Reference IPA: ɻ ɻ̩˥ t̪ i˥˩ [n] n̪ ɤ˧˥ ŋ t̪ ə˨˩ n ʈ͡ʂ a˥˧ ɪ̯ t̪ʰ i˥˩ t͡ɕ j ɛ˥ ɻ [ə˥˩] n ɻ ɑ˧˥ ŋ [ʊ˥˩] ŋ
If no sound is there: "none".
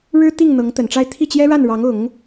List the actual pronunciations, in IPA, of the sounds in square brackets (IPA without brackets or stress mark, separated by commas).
ŋ, a˥˩, ʊ˨˩˦